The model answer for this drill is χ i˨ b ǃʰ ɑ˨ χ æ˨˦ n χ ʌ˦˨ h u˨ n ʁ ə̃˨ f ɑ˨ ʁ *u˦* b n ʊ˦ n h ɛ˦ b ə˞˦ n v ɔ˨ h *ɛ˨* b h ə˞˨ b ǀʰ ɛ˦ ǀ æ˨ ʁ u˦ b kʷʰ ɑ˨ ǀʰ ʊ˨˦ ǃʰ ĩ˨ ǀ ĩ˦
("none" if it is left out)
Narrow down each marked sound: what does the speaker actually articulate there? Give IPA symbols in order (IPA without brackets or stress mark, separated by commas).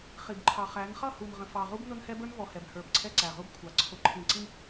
u˦, ɛ˨